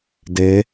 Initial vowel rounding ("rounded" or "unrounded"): unrounded